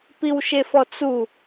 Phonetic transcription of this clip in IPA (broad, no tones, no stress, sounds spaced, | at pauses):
p i w ʃ e f ɔ t͡s u